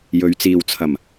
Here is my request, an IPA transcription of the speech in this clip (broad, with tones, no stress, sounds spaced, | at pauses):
j ɵ˨˧ ɥ t͡s iː˨ w t͡sʰ ɐ˨˩ m